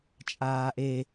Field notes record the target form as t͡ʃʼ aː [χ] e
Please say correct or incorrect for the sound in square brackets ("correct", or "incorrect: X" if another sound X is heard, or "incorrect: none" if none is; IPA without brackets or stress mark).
incorrect: ʔ